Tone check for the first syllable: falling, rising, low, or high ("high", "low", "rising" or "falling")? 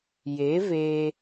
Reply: rising